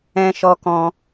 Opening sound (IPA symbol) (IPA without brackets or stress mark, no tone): ɛ̃